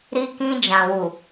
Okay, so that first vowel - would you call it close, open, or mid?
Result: close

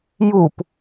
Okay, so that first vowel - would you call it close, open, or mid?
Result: close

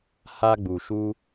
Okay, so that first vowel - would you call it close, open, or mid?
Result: open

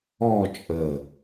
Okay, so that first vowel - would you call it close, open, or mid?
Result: mid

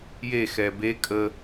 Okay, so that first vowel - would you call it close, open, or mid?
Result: mid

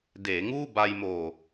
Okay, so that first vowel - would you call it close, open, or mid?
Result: mid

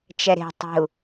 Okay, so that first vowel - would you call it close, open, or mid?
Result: mid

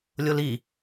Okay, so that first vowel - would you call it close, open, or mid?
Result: mid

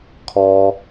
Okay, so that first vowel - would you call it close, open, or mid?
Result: mid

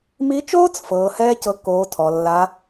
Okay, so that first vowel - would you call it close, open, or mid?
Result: close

